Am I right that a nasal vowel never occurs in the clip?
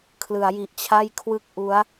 yes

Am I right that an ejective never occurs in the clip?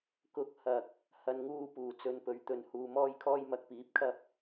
yes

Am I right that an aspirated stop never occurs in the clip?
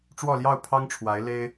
no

